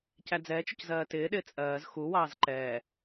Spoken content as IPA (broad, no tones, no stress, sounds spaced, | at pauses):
c æ d͡z ɛː t͡ʃ ʊ c z ɜː t ɪː ɗ ɪː t͡sʼ ɜː z x u w ɑː z ǃ ɛː